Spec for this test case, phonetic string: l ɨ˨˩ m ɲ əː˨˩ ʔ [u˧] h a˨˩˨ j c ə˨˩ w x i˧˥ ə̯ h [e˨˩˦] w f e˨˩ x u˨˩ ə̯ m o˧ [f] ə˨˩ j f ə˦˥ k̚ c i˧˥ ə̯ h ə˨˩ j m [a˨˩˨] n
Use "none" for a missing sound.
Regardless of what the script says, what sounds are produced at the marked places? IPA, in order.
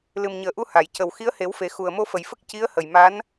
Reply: u˧, e˨˩˦, f, a˧˥

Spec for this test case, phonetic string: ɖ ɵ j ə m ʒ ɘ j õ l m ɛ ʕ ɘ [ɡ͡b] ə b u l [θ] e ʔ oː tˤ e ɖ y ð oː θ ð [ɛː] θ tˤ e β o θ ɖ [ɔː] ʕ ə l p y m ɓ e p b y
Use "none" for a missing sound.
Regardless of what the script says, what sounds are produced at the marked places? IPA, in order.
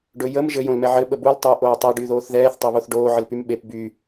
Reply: ɓ, tˤ, ɛː, oː

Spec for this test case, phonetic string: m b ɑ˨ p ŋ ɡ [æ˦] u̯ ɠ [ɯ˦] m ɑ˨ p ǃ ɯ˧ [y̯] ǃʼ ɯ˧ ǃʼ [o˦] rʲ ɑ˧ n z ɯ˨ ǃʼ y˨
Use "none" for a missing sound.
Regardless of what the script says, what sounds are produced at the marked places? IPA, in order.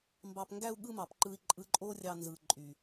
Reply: æ˧, ɯ˦, i̯, o˦

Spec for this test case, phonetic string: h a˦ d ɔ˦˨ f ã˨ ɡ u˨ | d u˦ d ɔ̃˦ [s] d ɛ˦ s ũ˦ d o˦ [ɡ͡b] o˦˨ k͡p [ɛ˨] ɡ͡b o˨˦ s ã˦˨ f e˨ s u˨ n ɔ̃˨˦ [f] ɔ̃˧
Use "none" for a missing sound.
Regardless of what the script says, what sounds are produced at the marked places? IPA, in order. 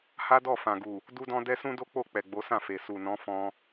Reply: none, k͡p, ɛ˨, f

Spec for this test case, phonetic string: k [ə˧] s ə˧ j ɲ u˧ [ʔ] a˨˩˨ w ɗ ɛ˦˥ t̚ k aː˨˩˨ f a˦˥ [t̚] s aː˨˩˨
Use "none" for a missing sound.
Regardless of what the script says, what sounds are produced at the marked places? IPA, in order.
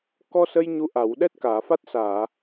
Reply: ɔ˧, ʔ, t̚

